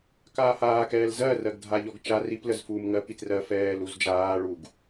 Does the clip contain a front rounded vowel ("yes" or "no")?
no